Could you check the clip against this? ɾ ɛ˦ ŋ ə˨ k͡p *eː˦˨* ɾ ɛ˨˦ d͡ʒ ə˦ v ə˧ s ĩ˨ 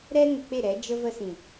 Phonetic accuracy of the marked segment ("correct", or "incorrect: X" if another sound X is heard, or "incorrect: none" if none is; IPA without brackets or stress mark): incorrect: e˦˨